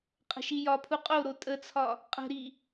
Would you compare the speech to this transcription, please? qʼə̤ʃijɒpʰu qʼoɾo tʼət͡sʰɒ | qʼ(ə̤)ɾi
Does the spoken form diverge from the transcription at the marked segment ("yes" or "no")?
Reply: no